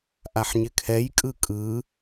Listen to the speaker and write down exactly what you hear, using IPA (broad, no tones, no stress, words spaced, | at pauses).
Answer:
ʔaħɲɪkʰɛj kʼɯkʼɯ